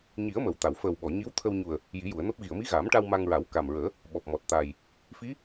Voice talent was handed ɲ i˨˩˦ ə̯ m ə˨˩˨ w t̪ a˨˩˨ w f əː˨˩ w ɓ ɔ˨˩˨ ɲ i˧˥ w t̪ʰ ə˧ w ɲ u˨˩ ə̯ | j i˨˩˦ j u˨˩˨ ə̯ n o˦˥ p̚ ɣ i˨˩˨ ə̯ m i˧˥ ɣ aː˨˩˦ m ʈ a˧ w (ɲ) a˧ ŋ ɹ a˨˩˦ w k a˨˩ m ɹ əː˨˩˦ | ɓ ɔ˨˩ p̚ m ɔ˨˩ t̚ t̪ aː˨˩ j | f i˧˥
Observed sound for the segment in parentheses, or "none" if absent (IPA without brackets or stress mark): m